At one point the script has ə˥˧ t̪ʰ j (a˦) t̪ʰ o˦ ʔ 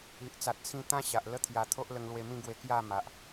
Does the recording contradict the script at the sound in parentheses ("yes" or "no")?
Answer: yes